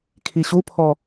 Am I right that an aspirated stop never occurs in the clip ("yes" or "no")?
no